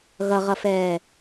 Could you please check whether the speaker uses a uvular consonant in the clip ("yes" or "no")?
yes